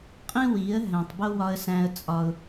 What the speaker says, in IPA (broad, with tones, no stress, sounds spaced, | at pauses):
qʼ ĩ˦ w i˨˦ ə̯ ɦ æ̃˨ tˤ b o˦ w ɒ˦ ə̯ s æ̃˦ ə̯ t͡sʼ ɒ˦ ʊ̯